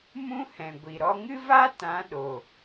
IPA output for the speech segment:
m ũ˦ h ɛ̃˨ ɡʷ i˨ ɾ ɔ˧ ŋ ɨ˦ v a˦ t ã˨˦ ɗ o˨

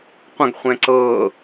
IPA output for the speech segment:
qʷ ə̃ ɡ χʷ ɛ̃ ǀ ɤ

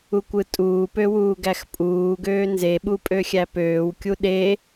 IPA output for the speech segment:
u kʷ ɯ tʼ uː p ø w uː ɡ æ x pʼ uː ɡ øː n z e ɓ u pʼ ø xʲ æ p øː w kʲ u ɗ e

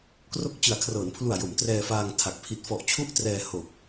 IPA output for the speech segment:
k r o˦˥ k̚ t͡ɕ ɯ˩˦ a̯ kʰ r ɤː˩˦ n pʰ l u˨˩ a̯ j o˩˦ m t r ɛː˧ f aː˧ ŋ tʰ a˨˩ k̚ pʰ i˨˩ t̚ f ɔ˨˩ ʔ t͡ɕʰ u˥˩ ʔ t r ɛː˧ h o˨˩ k̚

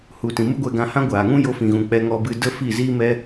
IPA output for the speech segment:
h u˨ t ĩ˨ m u˦ ɡʷ ɛ˧ ɡ ã˧ h ã˦ ɡʷ aː˨ ŋ ũ˦ j o˧ f ĩ˨ ɣ ũ˨ k͡p ɛ˧ ŋ ɔ˧ b ɨ˧ d ə˦ f i˦˨ z iː˦ m ɛ˦

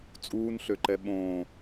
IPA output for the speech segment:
t͡sʼ uː n ɬ ø ǃ ɛ ɓ õː

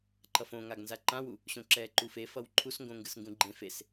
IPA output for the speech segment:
ǃ ʌ f õ ŋ a ɡ n z a ǃ ã w u | ɕ õ ǁ ɛː ǃ u f e f ʌ w ǃʰ u s ŋ ɡ õ ŋ ɡ ɯ s ŋ ɡ ũ ɡ͡ǃ ẽ f e s

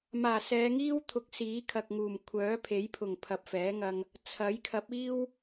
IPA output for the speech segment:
m aː˨˩ s ɛː˨˧ ŋ iː˥ w t̪ʰ ʊ˨ k̚ s iː˨˥ kʰ ɐ˨ k̚ ŋ uː˨˩ m kʷʰ œː˨˥ pʰ e˨˥ j pʰ ʊ˨˩ ŋ pʰ ɐ˨ p̚ f ɛː˨˥ ŋ ɐ˧ ŋ | t͡sʰ ɐ˨˥ j kʰ ɐ˨˥ p̚ iː˥ w

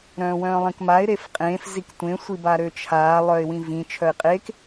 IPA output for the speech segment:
ɾ œ̃ː w œ̃ː lˠ ĩ k m a ɪ̯ ɾ e f qʼ ẽː f z i k tʷ ẽ sʷ i b a ɾ ø t͡ʃʰ aː lˠ œ ɪ̯ w ĩ v ĩ t͡ʃʰ œ ɪ̯ qʼ e k

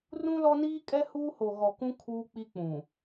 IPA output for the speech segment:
r ũ˦ l ɔ˦ n iː˦ kʼ ɛ˦ h uː˦ h o˨ ɣ ɔ˨ k ũ˦ kʰ uː˦ k͡p i˦ k͡p ũ˨

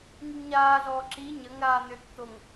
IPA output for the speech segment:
ŋ i ŋ ɲ aː ɮ ɔː ǁ i ɲ ə ŋ ɾ aː n ʏ tː o ŋ

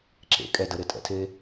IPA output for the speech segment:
ǁ ḛ kʼ ɛ d ə ɾ e tʼ ɛ̰ tʰ eː

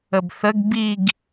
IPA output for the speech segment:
ə b θ ə ɡ b i ɡ

